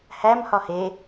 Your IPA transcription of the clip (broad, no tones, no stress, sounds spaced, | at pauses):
h æ m h ɒ h e